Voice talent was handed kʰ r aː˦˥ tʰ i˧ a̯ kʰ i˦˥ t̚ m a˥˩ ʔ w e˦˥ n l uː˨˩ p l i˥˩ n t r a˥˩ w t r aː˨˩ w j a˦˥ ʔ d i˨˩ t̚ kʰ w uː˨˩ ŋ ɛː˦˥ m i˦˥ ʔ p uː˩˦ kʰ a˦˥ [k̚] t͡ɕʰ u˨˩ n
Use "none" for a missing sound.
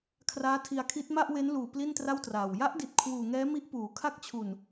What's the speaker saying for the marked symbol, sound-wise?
k̚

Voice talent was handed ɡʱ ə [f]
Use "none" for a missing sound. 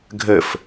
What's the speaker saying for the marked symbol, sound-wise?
f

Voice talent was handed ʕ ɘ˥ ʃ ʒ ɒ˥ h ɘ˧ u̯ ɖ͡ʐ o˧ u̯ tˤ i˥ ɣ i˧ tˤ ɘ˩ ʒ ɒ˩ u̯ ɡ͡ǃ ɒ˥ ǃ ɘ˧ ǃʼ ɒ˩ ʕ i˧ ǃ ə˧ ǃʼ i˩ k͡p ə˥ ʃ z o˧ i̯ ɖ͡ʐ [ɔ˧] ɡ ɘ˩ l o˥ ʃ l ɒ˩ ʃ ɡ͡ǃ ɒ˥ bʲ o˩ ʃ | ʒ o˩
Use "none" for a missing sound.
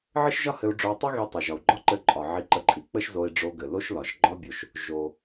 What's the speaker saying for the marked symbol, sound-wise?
o˧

